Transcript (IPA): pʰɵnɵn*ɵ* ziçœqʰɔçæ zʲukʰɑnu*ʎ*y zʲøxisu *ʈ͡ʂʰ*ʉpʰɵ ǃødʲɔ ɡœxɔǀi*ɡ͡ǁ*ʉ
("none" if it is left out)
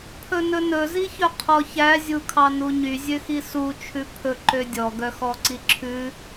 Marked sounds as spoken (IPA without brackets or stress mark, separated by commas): ɵ, ɲ, t͡ʃʰ, ǁʰ